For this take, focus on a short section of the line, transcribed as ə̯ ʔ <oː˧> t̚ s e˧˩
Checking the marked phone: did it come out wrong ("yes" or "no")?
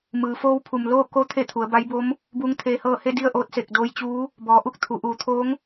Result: no